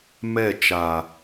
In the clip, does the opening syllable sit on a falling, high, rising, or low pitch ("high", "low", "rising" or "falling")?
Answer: falling